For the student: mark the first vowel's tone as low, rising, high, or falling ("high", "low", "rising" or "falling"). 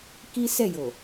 high